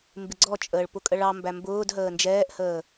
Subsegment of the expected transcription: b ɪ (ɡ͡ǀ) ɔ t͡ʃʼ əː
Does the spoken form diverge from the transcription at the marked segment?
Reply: no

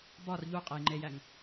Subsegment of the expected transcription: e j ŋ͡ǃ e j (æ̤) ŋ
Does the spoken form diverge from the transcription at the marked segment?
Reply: yes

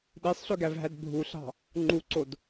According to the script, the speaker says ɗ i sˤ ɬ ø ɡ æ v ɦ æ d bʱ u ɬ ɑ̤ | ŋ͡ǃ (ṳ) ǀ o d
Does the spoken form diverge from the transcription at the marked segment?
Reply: yes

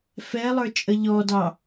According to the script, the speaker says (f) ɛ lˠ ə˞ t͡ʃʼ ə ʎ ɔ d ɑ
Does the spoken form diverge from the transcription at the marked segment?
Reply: no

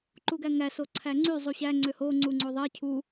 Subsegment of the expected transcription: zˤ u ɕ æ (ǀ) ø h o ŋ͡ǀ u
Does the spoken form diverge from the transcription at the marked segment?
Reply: yes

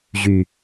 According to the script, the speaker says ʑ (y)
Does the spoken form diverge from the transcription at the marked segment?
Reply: no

